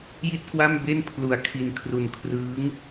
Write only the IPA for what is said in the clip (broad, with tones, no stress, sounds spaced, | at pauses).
j i˥˩ t̚ k w a˥˩ m b e˥˩ n pʰ l u˨˩ a̯ kʰ i˧ n kʰ r u˨˩ n kʰ r ɯː˦˥ ŋ